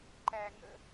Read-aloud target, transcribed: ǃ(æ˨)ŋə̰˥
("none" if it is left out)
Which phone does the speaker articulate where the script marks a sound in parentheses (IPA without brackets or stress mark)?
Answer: æ˦